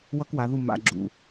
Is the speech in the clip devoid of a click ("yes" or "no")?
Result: no